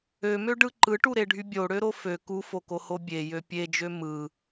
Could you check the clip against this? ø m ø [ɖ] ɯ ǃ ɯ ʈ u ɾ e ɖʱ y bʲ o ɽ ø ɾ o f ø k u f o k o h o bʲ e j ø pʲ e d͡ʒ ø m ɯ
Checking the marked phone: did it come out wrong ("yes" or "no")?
no